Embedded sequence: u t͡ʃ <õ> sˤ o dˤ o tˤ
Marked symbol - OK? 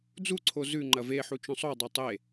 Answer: yes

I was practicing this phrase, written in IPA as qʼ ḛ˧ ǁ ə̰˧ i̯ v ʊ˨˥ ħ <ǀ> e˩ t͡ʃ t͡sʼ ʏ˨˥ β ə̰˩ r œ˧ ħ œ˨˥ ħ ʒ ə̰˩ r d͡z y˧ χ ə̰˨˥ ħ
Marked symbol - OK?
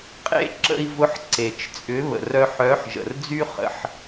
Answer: yes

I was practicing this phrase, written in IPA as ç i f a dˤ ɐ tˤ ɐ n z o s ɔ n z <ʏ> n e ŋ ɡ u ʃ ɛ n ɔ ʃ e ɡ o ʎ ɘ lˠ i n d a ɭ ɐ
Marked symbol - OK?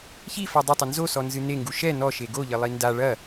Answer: no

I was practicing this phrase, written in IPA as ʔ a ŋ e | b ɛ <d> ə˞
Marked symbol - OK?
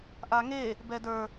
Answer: yes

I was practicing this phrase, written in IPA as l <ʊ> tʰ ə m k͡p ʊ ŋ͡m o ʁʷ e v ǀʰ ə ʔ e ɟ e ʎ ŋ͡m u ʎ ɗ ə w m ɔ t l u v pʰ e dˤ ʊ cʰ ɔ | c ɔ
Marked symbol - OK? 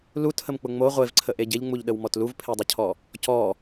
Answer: no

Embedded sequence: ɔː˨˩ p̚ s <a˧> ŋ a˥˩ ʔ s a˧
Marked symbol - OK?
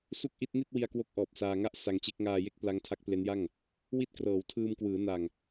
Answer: no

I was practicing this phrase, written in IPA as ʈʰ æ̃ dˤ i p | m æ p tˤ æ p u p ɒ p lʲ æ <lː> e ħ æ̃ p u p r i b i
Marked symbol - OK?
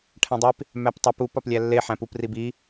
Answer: yes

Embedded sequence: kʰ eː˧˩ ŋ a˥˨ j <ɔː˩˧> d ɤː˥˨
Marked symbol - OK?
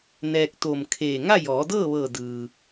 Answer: yes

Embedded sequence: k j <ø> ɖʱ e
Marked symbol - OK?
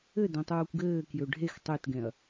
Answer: yes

